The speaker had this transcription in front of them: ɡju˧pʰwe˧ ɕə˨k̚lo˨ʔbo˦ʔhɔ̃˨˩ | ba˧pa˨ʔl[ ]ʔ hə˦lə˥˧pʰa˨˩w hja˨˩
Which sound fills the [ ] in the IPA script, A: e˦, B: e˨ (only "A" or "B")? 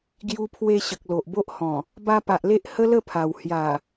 A